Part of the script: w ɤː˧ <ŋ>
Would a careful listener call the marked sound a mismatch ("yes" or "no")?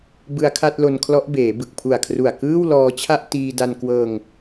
no